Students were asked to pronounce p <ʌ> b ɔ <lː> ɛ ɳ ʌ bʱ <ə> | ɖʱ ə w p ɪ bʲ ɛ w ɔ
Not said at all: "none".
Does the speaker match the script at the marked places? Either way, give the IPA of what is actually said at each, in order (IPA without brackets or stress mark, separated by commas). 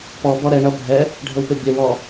ɔ, ɾ, ɛ